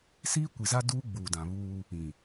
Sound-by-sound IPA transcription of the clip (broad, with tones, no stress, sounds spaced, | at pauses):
s iː˦ kʷ i˨ z a˦ d uː˦ ɡ͡b uː˨ d ã˨ β uː˦ | ĩ˨